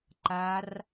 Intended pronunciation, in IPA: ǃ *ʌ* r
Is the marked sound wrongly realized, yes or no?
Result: yes